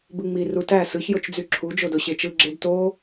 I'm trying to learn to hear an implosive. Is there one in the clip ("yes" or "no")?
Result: no